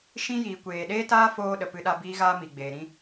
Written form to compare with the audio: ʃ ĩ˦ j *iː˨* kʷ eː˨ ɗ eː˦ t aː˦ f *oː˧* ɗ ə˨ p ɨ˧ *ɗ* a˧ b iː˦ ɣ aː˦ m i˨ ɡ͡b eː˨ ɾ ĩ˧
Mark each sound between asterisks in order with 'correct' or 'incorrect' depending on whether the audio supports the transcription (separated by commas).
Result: correct, correct, correct